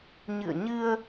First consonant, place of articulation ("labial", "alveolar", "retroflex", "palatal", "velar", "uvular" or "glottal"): palatal